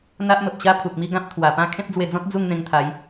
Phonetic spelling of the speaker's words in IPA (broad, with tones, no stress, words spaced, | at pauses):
n̪a˦ʔmə˨p̚ɕa˦ pʰu˨k̚mi˥˧ɡã˦p̚ t̪ʰwa˨˩pã˥˧ kʰẽ˦p̚d͡zwe˧d͡zɔ̃˦t̚ d͡zu˥˧ŋn̪ẽ˧ŋt̪ʰa˨˦j